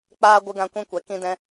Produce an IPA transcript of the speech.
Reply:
k͡paː˦ ɡʷɨ˧ɡã˧kʷĩ˧ kʷɛ˨ kĩ˦dɛ̃˦

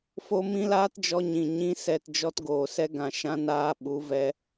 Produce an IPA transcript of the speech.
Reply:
fo˦mĩ˦ laː˦td͡ʒɔ˧ɲĩ˨ ɲĩ˧ sɛ˨t d͡ʒɔ˧tɡoː˨sɛ˧ ɡã˨ʃã˧naː˧ ɓu˨˦vɛ˧

